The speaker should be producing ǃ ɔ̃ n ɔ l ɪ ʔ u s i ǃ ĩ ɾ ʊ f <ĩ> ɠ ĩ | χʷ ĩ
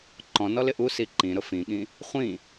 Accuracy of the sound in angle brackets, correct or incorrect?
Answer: correct